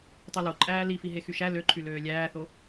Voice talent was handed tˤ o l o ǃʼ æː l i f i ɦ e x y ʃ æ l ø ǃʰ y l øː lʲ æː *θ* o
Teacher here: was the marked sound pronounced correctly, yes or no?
yes